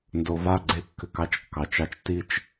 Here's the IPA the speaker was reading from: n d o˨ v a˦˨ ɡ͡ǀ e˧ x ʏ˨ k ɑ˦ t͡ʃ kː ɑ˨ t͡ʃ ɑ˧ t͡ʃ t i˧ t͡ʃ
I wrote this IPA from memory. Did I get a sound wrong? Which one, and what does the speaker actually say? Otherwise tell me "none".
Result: x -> kː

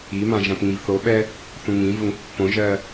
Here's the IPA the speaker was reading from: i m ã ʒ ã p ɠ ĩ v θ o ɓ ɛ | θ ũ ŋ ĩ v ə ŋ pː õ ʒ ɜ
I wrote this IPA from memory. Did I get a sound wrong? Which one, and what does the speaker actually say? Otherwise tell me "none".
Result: ɠ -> ŋ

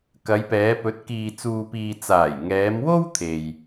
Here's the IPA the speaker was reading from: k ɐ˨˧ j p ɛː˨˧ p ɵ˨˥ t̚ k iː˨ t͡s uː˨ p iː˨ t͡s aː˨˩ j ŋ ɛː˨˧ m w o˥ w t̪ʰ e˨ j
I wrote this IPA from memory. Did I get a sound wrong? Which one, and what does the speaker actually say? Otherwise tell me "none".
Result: none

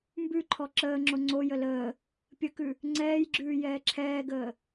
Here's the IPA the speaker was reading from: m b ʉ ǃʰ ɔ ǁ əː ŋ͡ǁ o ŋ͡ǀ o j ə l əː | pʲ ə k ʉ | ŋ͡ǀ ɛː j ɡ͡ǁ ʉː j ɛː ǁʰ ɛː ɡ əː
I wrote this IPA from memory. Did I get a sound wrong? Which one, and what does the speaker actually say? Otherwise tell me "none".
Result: none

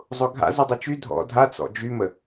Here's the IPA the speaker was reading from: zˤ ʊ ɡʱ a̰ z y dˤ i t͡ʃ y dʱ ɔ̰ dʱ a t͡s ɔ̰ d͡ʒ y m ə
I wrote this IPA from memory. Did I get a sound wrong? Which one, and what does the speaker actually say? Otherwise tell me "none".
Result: none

